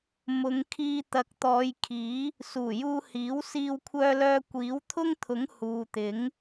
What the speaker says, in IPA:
m ʊ˨˧ ŋ kʰ iː˧ t̪ ɐ˨˥ k̚ t̪ ɔː˨˧ j kʰ iː˨˥ | s uː˨˩ j uː˧ h iː˨˥ w s iː˧ w kʷʰ œː˧ l œː˧ kʷ iː˨˥ w t̪ʰ ʊ˥ ŋ t̪ʰ ʊ˨˥ ŋ h uː˨ t̪ ɪ˨˥ ŋ

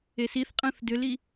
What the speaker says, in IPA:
e s i θ qʼ ə̃ː θ d ʏ l i

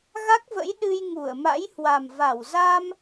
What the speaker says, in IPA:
ɣ a˦˥ k̚ v ə̰˧˥ j ɗ ɨ˧ j ŋ u˧˩ ə̯ m a̰˧˥ j h w a˨˩ m v a˧˩ w z a˧ m

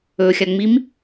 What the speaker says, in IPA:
ɵ xʲ a ŋ͡m i m

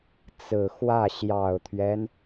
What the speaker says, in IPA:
t͡s ɹ̩˨˩ x w ä˥˩ ɕ j ɑ˨˩ ʊ̯ t̪ʰ ɥ ɛ˦ n

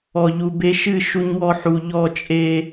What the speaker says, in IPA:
ɔ˨ ʎ u˨ b e˦ ʃ ɨ˦˨ ʃ u˦ ɲ w ɔ˦ ħ u˨ ʎ ɔ˦˨ t͡ʃʼ e˦

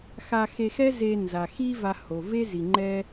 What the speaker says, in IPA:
x a˧ x e˧ x ɛ˦ z e˧ n z a˨ x i˦ v a˧ h o˨ v e˦ z i˨ ŋ͡ǃ ɛ˦

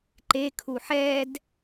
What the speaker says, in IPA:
ǃ e kʰ u ħ ɛ d

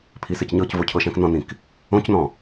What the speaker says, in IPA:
pʰ i s ɪ c ɲ ɤ c v o cʰ ɤ ʃ æ̃ k n ɔ̃ n ĩ k | õ c n ɔ̃

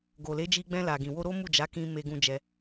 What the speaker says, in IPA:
ɡ o˨ l e˨˦ d͡ʒ i˧ ɡ͡b ɛ̃˧ l a˨ ɡ ĩ˨ w o˧ ɾ o˦ m u˦˨ d͡ʒ a˨˦ k ĩ˧ m e˧ ɡ ũ˧ d͡ʒ ɛ˧

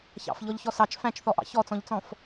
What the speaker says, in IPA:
ç ɑ̰ f ʎ ɔ ʎ ç ɔ s ɑ t͡ʃ f æ̃ t͡ʃ θ ɔ ʔ ɑ̰ ç ɔ t͡s ɔ̃ ʎ t͡s ɔ̃ f

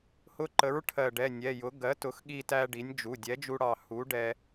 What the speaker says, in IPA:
h ʊ˧ ǃ ə˩˥ ɹ ʈʰ ɜ˧˩ ɖ ɛ˩˧˩ nʲ ɛ˩˧˩ j ʊ˩˥ ɡ ɜ˩˥ t ʊ˩˥ x ɠ i˧ t æ˧ ɖ i˩˥ nʲ d͡ʒ u˩˧˩ dʲ ɛ˩˥ d͡ʒ u˧ ɽ ɑ˧˩ h u˩˥ ɖ ɛ˧

